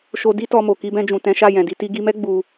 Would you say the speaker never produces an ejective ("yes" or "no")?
yes